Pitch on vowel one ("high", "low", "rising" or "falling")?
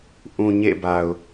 low